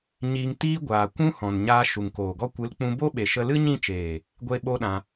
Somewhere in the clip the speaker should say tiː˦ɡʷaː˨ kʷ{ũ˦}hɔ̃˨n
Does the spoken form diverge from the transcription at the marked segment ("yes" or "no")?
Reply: no